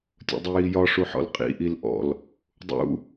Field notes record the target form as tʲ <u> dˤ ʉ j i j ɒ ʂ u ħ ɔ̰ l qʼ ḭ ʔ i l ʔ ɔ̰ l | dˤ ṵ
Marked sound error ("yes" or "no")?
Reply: yes